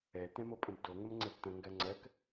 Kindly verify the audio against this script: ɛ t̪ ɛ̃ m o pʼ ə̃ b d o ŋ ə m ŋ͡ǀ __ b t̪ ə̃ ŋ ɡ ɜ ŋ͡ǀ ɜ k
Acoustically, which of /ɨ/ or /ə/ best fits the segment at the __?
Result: ə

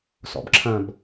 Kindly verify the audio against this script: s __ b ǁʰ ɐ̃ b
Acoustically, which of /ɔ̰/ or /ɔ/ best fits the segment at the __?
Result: ɔ̰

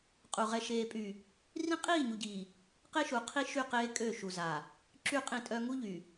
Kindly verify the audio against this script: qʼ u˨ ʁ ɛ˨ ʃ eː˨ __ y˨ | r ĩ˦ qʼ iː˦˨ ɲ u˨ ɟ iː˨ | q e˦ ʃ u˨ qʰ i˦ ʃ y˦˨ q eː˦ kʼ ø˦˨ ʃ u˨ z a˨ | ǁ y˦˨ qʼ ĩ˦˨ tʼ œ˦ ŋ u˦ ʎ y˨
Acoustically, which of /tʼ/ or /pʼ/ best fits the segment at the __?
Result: pʼ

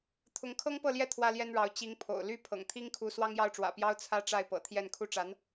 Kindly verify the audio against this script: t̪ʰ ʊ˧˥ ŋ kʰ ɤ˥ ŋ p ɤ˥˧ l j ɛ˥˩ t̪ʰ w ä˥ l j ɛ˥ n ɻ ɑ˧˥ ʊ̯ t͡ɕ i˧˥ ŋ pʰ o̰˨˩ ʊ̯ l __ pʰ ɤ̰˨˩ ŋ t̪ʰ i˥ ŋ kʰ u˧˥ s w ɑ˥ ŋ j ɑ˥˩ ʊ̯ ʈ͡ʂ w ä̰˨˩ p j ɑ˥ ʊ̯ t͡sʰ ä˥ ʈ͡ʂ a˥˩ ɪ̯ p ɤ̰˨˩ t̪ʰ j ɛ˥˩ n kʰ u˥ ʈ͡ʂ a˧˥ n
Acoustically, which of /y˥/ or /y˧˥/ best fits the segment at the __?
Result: y˥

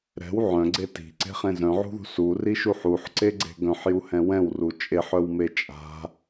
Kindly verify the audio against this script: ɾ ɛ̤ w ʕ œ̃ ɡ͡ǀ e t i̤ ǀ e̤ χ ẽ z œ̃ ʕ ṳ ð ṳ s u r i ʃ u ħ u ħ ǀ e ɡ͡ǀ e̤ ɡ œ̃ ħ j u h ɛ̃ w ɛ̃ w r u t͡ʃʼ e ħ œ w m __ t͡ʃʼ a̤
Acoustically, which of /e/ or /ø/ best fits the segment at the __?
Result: e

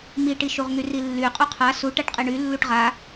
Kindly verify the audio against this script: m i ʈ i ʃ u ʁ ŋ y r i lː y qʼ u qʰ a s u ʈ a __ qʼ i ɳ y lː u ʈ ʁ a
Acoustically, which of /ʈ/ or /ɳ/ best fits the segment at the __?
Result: ʈ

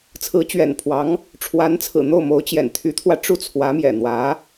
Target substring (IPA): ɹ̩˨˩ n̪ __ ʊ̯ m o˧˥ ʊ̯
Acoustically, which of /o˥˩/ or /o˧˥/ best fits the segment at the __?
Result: o˥˩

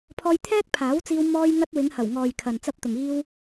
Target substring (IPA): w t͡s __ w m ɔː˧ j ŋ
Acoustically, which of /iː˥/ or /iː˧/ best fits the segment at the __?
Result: iː˧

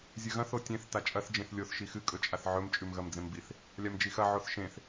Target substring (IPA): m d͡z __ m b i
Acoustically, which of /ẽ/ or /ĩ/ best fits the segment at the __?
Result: ẽ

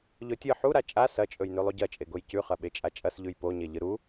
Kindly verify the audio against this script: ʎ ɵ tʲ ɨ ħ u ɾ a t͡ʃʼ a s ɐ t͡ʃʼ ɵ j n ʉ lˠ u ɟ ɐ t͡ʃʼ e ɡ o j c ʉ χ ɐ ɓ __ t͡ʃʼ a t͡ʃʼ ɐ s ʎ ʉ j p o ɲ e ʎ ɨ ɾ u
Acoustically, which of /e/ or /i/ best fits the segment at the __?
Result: e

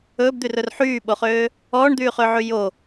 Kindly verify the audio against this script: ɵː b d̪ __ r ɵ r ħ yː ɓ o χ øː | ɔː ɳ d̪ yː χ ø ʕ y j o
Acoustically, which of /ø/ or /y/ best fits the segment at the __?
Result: y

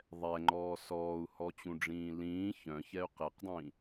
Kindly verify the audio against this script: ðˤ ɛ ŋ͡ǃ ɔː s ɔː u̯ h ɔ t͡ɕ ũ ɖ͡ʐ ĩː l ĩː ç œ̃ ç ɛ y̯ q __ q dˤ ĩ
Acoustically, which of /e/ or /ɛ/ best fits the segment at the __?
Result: e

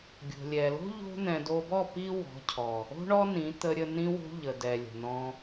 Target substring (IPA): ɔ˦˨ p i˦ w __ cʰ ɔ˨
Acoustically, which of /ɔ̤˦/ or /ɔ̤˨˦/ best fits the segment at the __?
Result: ɔ̤˨˦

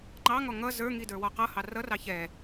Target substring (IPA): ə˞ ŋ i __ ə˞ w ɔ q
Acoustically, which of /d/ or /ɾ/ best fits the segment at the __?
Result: d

